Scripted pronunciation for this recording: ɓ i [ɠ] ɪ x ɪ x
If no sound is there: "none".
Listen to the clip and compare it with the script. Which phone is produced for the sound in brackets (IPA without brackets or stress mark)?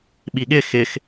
ɠ